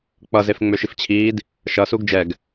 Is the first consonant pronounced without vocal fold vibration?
yes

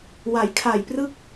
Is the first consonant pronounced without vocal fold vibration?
no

